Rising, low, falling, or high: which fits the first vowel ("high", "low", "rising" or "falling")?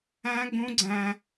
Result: high